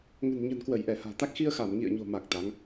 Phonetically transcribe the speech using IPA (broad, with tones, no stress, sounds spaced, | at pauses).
ŋ ə̤˨˩ n ɲ ə̤˨˩ n k w ə˧˩ j ʔ ɛ˧˩ h a̤ː˨˩ t̪ a˦˥ k̚ x i˧ ə̯ x a˧˩ m ŋ ḭ˧˨ ə̯ ɲ o̤˨˩ m a˨˩ k̚ t̪ a˨˦ ŋ